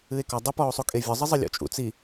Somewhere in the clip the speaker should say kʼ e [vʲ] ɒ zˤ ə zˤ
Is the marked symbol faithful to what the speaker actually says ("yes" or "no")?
yes